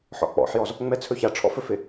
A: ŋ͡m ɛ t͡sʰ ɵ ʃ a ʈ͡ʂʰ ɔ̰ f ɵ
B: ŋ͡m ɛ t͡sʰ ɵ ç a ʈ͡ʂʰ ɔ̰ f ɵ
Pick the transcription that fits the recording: B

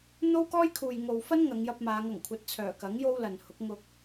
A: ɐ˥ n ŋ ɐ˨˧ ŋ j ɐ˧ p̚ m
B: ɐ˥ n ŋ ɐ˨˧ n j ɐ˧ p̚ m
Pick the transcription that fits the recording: A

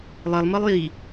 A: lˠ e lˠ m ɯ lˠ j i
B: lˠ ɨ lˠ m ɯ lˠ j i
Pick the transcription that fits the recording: A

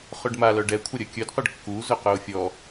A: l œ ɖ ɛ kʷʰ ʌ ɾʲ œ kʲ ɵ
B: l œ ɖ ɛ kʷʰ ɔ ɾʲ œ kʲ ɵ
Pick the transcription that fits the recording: A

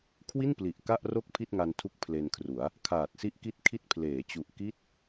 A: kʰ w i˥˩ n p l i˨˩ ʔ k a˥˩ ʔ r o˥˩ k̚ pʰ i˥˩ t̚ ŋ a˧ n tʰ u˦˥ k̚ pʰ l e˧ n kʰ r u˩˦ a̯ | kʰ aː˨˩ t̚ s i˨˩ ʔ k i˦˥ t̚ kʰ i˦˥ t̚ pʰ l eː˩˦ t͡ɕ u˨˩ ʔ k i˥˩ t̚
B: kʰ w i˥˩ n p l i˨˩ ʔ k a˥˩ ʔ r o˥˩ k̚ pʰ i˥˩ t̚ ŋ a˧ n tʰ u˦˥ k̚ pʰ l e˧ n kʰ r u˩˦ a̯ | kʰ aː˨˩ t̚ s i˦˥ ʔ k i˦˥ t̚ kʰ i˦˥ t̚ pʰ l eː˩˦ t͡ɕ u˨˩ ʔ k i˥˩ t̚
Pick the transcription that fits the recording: B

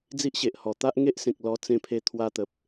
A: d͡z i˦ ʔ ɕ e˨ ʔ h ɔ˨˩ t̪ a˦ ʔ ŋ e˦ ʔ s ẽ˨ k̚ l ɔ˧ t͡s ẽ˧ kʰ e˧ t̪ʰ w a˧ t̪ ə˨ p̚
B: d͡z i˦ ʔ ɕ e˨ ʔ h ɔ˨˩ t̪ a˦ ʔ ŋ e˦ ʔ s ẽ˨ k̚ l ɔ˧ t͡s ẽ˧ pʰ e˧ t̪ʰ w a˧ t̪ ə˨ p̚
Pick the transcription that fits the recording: B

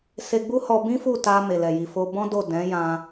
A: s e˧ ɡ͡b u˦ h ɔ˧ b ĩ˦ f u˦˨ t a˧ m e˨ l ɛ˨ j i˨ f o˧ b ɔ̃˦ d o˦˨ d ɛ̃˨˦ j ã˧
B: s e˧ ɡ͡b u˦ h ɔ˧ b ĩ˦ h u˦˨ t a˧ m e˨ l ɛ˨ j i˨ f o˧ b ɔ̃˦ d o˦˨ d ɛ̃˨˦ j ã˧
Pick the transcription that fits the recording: A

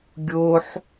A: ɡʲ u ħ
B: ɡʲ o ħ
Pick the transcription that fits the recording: B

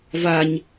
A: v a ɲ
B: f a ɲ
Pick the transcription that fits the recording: A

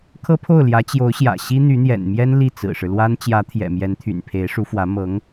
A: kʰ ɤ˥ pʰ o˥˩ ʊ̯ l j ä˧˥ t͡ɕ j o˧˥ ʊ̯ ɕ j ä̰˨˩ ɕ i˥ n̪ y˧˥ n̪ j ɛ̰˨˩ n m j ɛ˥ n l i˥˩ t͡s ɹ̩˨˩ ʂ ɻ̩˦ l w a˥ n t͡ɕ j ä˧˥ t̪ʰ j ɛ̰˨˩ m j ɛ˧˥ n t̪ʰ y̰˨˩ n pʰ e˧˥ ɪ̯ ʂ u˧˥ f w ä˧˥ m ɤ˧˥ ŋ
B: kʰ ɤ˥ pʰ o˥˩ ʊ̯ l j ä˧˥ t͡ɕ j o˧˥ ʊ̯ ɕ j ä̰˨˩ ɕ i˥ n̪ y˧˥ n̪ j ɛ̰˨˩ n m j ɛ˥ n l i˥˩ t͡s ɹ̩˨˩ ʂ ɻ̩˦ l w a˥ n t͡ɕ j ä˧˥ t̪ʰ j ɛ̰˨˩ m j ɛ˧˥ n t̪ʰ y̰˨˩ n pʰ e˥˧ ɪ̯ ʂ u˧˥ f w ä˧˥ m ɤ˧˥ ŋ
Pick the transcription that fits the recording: A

